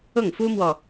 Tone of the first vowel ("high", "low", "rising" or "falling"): falling